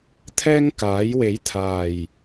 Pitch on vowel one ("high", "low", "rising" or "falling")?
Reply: high